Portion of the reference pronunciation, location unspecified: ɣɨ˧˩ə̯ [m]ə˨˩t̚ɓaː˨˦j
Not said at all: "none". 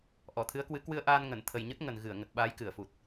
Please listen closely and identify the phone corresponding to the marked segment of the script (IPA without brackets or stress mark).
ŋ